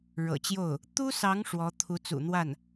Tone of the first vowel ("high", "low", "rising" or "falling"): low